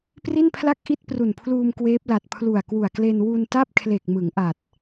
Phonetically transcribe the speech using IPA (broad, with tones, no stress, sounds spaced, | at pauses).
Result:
p r i˥˩ n pʰ l a˥˩ k̚ ʔ i˥˩ t̚ p r u˨˩ n pʰ l uː˧ m k w eː˦˥ p̚ l a˨˩ t̚ pʰ l u˨˩ a̯ k w u˨˩ a̯ k l e˧ n w u˧ n t a˥˩ p̚ kʰ l e˨˩ k̚ m ɯ˩˦ ŋ ʔ a˨˩ t̚